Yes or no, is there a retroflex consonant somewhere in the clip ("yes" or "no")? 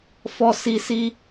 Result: no